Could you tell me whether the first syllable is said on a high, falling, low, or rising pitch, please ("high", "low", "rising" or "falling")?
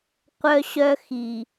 high